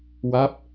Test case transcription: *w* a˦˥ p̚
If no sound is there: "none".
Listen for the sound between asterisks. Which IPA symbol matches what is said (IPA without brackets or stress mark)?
w